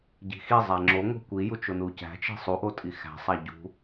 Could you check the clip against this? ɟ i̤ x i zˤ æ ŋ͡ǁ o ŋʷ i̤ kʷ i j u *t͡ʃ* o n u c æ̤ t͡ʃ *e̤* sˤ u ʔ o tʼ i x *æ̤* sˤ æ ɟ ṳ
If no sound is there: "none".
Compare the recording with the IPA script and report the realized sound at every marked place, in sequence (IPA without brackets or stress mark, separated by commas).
t͡ʃ, i̤, æ̤